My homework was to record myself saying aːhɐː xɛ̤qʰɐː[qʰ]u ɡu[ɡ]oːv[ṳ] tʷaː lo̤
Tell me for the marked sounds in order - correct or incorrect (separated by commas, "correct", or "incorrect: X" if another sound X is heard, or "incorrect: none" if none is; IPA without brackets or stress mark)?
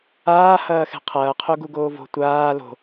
correct, correct, incorrect: o̤